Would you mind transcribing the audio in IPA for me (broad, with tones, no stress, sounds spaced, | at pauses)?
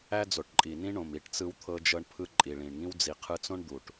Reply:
æ˦ d͡z o˨ ʈ ǃʼ i˨ n ĩ˦ ɳ õ˨ m i˨ ʈ t͡s ɯ˧ w t̪ʰ ɤ˧ d͡ʒ ɤ˧ ɳ pʰ ɯ˧ ǃʼ i˨ ɭ ĩ˨ ɳ ŋ ĩ˦ w d͡z i˨ qʰ ɯ˧ t͡s õ˦ ɳ d̪ u˨ ʈ